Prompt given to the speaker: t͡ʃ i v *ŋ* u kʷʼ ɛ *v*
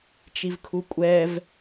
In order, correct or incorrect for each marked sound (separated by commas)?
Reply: incorrect, correct